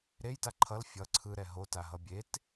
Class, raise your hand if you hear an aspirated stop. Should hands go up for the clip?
yes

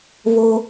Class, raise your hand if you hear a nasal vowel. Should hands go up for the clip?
no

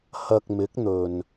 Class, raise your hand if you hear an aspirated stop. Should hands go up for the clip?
no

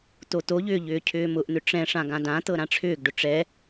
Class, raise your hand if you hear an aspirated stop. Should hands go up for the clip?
yes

